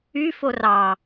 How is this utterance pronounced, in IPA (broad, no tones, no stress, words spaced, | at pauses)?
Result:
yfo rɑ